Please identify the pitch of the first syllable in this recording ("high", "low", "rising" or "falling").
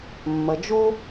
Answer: low